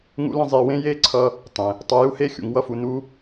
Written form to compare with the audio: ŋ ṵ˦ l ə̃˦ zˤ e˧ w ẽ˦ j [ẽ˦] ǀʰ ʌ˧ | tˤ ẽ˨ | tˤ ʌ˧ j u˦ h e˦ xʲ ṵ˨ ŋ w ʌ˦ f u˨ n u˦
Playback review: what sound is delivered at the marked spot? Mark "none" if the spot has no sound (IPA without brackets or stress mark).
e˦